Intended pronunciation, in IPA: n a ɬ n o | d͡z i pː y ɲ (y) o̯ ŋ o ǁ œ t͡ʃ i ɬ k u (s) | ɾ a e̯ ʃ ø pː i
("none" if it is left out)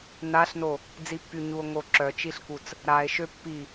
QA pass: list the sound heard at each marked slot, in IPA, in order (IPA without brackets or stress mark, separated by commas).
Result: u, t͡s